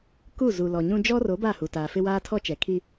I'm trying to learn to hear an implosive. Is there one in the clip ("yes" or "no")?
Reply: no